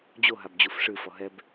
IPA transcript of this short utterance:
d͡ʑ o ɦ a b d͡ʑ u f ʂ ɨ f ɔ ɦ ɛ b

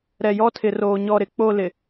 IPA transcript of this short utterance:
ɾ ɛ˨ j ɔ˦ tʰ ɪ˨ r oː˨ ɲ ɔ˨ ɾ ɪ˨ k͡p o˦˨ l ɪ˨

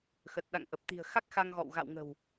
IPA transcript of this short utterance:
x ə˨˩ t̚ ɗ a̰˧˨ ŋ ʔ ə˨˩ p̚ t̪ i̤˨˩ ə̯ x a˦˥ k̚ x a˧ ŋ ɣ ɔ̰˧˨ w ɣ a̰˧˨ w ŋ ə̤˨˩ w

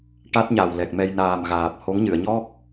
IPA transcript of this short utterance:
ʈ a˦˥ t̚ ɲ a˨˩ w l ɛ˨˩ k̚ m ɛ˧ j n aː˨˩ m ɣ aː˨˩ p̚ h o˧˥ ŋ ɲ ɨ˨˩˨ ə̯ ɲ ɔ˦˥ k̚

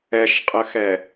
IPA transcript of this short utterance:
ɛ ʃ qʼ ə x ɛ

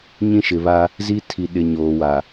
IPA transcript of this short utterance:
ɲ ĩ˦ ʃ ɪ˨ β a˦ | z i˦ tʰ i˨ ɗ ɪ˨ ɲ oː˨ w a˨

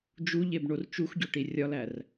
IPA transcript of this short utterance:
d͡ʒ u ʎ e b ɳ o r t͡ʃ u x ɟ o ʈ i rʲ ɒ l æ r

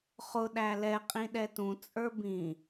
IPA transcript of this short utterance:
χ ʊ ɗ æ l ɛ qʼ ĩ ɗ ɛ t ũ t͡sʼ ə˞ b ĩ

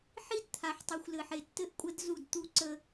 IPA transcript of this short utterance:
ħ i˦ d t̪ʰ a˨ ħ tˤ u˨ xʷ l ɘ˨ ħ e˨ tː ɘ˦ ʔ kʷʼ ə˦ d z u˦˨ d t̪ u˦ ǀ ə˦

